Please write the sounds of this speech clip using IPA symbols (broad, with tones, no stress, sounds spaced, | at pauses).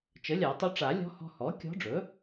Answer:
t͡ʃ ə˩˥ lʲ a˨˩˦ tˤ ɵ˧˥ ʈ͡ʂ a˨˩˦ lʲ ɔ̤˧˥ h ɔ̤˧ h ɔ˩˥ kʲ ɔ̤˧˥ ɖ͡ʐ ɵ˩˥